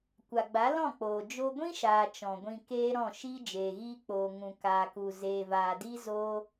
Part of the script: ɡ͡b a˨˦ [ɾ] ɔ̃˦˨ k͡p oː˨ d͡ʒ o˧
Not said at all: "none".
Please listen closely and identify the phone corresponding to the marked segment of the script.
l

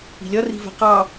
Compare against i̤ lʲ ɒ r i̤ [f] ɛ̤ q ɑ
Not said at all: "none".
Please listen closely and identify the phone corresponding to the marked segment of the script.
v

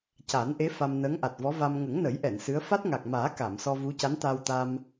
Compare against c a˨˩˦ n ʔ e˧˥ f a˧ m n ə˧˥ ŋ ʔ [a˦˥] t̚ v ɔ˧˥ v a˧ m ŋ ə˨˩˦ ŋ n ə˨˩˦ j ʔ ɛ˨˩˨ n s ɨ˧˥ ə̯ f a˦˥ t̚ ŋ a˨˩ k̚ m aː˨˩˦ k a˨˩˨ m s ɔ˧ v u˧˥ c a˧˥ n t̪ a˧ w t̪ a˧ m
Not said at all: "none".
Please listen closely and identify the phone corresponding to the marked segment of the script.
a˨˩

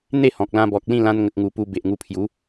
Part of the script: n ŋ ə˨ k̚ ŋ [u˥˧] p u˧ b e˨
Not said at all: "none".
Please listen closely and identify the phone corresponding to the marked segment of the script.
u˨˩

